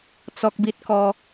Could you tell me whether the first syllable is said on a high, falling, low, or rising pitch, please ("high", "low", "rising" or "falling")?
high